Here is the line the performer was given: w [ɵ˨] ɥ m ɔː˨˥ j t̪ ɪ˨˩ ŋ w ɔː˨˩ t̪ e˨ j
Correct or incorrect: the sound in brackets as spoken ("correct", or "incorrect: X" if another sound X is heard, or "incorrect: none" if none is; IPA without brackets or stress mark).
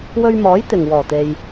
incorrect: ɵ˧